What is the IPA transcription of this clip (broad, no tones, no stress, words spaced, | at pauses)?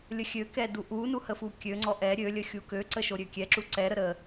lʲəxʲøkɛ duʔunu həfukʲøŋ͡ǀɔ ʔɛ ɾʲølʲəxʲu køǀəʃoɾʲø kʲɛ ǁuǀɛɾə ɾə